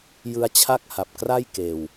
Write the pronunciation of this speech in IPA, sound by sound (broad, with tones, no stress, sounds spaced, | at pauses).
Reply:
j ɯ˧ a̯ t͡ɕʰ a˥˩ k̚ h a˨˩ p̚ k r a˥˩ j k eː˧ w